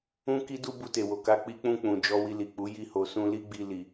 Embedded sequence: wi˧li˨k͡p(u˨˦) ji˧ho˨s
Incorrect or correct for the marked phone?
correct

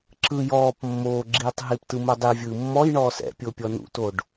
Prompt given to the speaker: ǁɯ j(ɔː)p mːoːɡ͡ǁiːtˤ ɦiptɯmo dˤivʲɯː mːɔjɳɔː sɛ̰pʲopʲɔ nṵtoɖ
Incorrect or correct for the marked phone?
correct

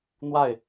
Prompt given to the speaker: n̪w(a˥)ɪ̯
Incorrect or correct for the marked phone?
incorrect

